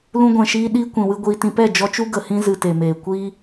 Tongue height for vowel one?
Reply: high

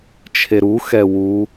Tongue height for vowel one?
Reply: mid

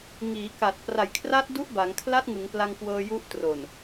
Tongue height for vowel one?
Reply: high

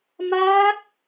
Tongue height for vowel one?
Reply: low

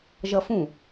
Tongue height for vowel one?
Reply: mid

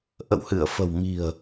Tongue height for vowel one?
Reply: mid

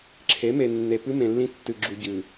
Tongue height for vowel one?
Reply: mid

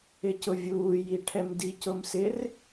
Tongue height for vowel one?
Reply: high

